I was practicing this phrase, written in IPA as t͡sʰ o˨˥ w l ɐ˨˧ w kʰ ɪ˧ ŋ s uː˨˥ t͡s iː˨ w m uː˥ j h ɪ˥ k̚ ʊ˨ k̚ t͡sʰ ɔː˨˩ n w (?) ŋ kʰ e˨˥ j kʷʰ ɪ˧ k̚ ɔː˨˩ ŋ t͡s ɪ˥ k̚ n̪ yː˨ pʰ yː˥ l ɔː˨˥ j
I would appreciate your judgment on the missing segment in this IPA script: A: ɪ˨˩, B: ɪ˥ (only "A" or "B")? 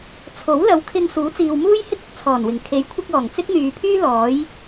A